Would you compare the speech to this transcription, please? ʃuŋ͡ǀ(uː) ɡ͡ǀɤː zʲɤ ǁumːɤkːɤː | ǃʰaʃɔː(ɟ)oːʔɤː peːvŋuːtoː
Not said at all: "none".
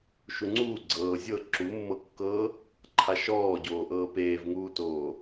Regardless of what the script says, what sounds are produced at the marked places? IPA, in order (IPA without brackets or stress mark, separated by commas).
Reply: uː, ɟ